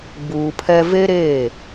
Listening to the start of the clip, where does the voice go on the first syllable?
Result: low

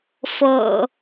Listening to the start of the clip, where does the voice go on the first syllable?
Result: low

